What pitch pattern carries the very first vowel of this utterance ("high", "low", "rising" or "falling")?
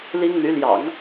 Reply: high